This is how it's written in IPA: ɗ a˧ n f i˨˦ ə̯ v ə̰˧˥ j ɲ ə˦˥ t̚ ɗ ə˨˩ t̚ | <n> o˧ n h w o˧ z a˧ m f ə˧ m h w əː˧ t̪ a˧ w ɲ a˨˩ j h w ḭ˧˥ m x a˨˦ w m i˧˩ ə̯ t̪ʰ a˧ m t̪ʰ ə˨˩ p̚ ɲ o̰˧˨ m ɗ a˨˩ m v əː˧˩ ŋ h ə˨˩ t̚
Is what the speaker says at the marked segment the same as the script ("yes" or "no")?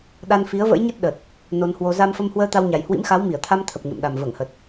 yes